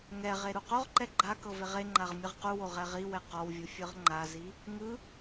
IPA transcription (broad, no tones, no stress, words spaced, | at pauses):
ŋɛʁe ɾuqoʁǃɛ ɡ͡ǃa kɤveʁeŋ͡ǃaʁ mʲɯʁquwo ʁɛʁiwɛ qɔwvʲu fʲɯʁŋ͡ǃazi | ŋɯ